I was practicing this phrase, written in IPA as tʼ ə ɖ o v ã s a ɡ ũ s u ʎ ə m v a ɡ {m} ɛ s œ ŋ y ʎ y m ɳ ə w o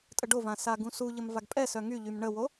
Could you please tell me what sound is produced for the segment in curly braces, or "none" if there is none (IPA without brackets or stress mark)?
pʼ